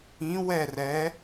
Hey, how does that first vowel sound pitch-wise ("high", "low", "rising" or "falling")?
rising